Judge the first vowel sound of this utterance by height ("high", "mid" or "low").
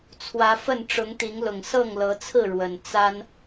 low